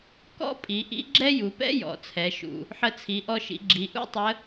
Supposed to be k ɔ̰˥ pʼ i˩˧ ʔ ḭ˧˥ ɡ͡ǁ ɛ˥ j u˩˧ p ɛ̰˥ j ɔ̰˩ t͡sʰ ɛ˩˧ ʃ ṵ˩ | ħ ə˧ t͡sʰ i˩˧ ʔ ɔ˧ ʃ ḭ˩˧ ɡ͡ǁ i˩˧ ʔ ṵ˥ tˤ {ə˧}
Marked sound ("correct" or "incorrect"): incorrect